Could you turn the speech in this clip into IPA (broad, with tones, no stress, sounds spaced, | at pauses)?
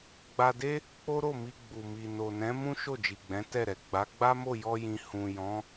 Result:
ɡ͡b a˧ d e˦ | k͡p o˦ ɾ o˦˨ m i˧ ɡ͡b u˨ m i˨ n o˨ n ɛ̃˨˦ m ũ˦ ʃ o˦˨ d͡ʒ i˨ ɡ͡b ɛ̃˨˦ t ɛ˦˨ ɾ ɛ˨ ɡ͡b a˨˦ ɡ͡b a˦ m o˦˨ j ɔ˧ j ĩ˨ h ũ˨ j ɔ̃˨˦